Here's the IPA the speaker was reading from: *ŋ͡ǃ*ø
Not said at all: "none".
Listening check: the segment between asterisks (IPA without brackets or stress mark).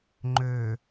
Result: ŋ͡ǃ